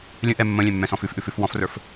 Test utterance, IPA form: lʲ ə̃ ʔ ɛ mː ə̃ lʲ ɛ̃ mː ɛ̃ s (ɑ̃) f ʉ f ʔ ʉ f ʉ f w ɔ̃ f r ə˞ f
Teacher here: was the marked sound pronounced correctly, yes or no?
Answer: no